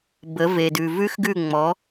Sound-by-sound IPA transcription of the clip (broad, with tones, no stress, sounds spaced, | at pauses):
b ə˨˦ v e˨ d ʉ˨ v ʉ˦ x ɡ ʉ˦˨ ŋ͡m ɔ˨˦